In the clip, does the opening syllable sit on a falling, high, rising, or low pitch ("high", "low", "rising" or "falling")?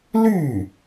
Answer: falling